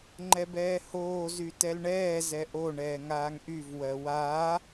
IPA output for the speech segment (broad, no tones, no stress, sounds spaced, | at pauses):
ŋ͡ǃ ɛ b ɛː h oː z y t ɛ l ɳ ɛː z ɛ ʔ o ɳ ɛː ŋ aː ŋ ʔ y v w ɜ w a